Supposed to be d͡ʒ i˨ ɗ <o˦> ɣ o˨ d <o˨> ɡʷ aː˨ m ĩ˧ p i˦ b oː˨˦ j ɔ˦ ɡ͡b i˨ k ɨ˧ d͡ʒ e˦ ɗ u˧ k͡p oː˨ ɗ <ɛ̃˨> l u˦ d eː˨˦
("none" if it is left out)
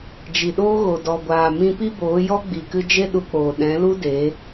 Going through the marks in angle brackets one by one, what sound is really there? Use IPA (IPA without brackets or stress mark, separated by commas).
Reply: oː˦, ɔ˨, ɛ̃˨˦